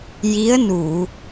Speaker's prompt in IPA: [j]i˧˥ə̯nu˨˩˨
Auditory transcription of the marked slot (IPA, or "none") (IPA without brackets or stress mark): j